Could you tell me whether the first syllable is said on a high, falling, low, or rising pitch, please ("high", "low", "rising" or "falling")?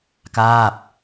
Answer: falling